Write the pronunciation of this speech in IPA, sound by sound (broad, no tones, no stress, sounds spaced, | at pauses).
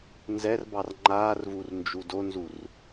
n z ɛ r b ɑ r ŋ͡ǃ aː r v u r n d͡ʒ u d o n z u r